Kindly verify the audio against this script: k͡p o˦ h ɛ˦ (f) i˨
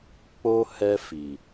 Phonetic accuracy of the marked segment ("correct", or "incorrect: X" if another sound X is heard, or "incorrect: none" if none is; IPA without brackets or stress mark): correct